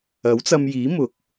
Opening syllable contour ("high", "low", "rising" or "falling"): rising